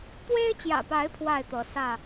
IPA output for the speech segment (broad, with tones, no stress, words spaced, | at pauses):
t̪we˦ɪ̯t͡ɕjä̰˨˩pa˨˦ɪ̯ pʰwa˥˨ɪ̯t̪ɤ˨˦ sä˥˨